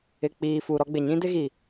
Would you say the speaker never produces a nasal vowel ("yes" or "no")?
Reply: no